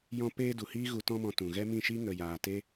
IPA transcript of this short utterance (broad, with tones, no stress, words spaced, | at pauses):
jɔ̃˦ peː˦ du˨hiː˦ ɣu˧tɔ̃˦mɔ̃˧ tũ˨ ɣɛ˦mĩ˦˨ʃiː˦ ŋə˨jaː˨ te˦